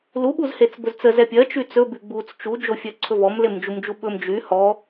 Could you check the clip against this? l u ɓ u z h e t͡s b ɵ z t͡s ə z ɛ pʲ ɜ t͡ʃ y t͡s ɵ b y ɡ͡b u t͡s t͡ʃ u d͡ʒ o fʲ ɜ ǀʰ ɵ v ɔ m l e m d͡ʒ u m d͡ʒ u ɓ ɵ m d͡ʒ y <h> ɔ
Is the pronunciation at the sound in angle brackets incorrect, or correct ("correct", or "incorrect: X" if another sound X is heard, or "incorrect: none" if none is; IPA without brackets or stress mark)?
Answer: correct